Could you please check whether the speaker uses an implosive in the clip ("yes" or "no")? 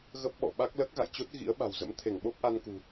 yes